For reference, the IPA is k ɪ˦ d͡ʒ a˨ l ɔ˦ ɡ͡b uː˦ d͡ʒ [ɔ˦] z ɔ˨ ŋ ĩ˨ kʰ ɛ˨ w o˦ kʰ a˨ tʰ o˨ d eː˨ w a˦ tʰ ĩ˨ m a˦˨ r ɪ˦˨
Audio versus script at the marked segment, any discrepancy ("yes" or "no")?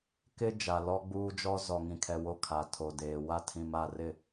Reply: no